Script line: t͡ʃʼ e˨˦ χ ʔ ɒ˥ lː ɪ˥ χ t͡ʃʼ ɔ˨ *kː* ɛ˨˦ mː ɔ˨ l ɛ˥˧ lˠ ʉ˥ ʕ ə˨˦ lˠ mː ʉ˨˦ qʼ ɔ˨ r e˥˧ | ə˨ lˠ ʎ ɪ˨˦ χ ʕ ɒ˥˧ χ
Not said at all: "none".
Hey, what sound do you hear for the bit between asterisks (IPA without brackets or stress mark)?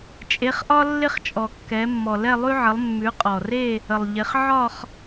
kː